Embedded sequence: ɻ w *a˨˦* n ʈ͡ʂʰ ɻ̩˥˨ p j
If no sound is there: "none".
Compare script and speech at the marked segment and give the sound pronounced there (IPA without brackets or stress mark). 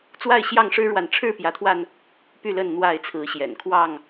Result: a˨